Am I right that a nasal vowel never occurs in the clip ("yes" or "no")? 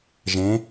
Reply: no